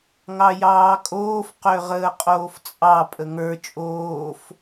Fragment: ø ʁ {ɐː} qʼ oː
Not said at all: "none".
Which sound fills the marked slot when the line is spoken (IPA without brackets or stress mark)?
əː